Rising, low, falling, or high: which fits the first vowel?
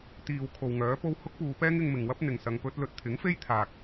low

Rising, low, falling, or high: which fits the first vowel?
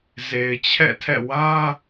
low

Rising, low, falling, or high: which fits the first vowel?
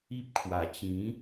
high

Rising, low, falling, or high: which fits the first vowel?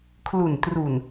low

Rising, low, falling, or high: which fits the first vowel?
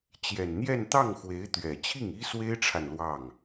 low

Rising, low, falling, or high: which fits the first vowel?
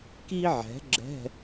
high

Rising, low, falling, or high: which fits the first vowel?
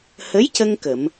rising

